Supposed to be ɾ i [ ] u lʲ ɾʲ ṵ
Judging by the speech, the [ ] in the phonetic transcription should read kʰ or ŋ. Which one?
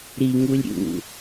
ŋ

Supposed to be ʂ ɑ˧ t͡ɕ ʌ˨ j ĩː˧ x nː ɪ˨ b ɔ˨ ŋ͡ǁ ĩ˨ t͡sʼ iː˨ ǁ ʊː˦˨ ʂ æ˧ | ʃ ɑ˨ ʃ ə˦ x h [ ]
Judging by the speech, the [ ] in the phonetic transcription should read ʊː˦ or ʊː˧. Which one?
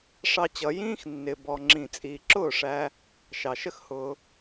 ʊː˧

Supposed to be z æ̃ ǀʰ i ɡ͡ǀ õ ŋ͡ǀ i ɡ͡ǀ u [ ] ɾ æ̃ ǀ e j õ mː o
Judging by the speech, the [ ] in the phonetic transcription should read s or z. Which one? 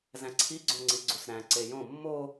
s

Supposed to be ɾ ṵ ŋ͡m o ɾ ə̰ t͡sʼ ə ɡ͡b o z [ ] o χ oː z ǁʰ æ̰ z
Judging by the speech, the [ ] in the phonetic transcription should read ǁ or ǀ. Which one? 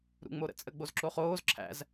ǁ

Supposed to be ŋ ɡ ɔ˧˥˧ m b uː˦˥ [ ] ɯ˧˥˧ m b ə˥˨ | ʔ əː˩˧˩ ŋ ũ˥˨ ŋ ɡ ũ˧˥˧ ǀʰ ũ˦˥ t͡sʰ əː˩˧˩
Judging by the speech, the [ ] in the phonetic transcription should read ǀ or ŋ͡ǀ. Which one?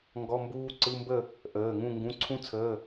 ǀ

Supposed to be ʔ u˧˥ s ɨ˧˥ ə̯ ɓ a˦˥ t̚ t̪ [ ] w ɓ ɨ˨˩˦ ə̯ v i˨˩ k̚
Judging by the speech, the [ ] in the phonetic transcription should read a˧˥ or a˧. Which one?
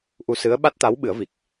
a˧˥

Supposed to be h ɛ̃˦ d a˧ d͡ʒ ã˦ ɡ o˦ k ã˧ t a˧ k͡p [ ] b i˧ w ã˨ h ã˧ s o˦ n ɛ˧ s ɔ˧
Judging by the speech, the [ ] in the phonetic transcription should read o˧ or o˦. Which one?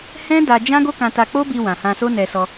o˦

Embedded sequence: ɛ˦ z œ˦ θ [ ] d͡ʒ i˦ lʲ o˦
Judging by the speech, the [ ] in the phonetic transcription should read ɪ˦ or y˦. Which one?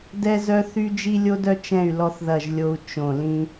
y˦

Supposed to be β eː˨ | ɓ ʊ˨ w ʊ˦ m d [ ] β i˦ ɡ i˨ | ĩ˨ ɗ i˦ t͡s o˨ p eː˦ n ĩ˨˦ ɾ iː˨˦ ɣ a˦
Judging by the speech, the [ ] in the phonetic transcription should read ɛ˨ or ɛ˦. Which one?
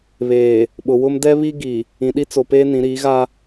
ɛ˦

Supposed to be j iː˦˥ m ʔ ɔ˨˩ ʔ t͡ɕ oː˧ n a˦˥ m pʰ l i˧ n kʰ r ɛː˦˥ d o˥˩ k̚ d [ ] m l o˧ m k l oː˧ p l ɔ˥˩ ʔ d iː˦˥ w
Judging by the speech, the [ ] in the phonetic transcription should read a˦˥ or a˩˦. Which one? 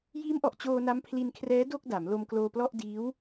a˩˦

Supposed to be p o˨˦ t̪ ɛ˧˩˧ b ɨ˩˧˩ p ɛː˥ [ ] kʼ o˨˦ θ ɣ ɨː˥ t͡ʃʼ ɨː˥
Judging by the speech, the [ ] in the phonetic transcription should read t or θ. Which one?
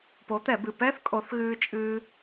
θ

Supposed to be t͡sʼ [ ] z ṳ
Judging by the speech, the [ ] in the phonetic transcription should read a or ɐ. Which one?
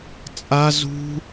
a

